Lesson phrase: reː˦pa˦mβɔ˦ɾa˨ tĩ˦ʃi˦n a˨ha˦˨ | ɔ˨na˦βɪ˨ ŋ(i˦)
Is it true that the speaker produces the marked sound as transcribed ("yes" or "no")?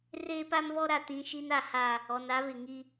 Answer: yes